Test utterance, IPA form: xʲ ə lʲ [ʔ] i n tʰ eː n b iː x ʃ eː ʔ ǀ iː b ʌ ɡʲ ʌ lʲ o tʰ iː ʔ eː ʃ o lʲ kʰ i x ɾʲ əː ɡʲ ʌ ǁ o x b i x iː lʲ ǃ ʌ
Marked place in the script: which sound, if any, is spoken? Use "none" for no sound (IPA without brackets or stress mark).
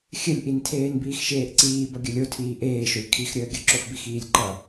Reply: ʔ